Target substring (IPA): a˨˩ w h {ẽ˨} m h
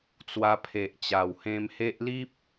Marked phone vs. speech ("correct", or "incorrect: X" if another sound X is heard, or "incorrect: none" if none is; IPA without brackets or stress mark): incorrect: ẽ˧